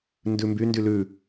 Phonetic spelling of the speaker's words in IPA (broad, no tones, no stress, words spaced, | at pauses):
ndʉmby ndylʉ